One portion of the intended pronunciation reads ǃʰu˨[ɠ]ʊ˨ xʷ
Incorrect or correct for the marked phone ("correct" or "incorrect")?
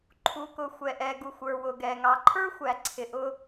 incorrect